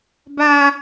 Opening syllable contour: high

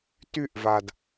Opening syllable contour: falling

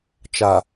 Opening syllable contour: low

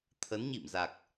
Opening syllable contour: rising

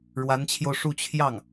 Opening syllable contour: rising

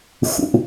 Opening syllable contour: high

